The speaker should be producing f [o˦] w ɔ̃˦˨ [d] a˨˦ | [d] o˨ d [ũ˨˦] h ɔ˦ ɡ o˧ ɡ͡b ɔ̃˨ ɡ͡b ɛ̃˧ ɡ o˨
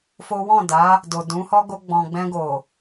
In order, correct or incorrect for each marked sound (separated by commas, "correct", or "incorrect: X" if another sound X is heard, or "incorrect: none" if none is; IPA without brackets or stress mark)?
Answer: correct, correct, correct, correct